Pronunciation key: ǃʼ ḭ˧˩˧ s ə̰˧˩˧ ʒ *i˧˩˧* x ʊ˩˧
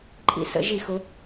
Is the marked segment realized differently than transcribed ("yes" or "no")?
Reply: no